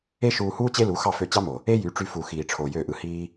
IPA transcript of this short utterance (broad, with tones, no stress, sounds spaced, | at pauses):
e˦ ʃ uː˧ h uː˦ t͡ɕ e˦ l u˨˦ x ɑ˦˨ f ø˧ t͡ɕ ɑ˦ m o˨ | e˦ j y˨˦ ʈ͡ʂ y˧ f u˨ x iː˨ ʈ͡ʂʰ o˨ j øː˦˨ ʔ ɯ˧ h iː˦